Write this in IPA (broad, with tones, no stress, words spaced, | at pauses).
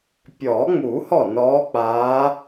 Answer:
pʲɔː˨˩˦ŋ͡muː˨˩˦ hɔ˥˩nɔː˧˥k͡paː˧˥